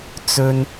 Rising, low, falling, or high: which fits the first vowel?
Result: high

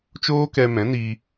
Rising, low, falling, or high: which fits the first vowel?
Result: high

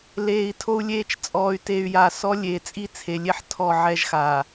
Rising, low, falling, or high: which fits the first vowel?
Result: low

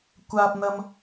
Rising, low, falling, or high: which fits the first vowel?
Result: high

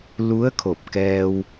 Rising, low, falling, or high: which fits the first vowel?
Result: rising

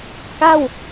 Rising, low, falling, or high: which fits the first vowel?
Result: falling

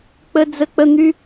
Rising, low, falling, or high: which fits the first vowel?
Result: high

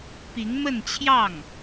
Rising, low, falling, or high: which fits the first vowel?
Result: rising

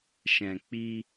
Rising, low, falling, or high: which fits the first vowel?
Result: low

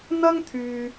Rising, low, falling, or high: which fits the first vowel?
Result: high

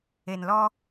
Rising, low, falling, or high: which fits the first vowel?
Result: low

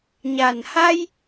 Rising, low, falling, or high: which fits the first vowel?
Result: low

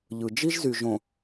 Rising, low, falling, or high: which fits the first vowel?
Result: low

